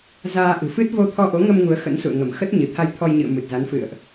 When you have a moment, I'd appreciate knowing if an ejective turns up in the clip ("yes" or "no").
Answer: no